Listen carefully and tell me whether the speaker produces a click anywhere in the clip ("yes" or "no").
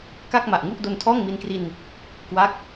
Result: no